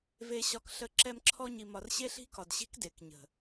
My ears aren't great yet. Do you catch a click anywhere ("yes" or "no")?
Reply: yes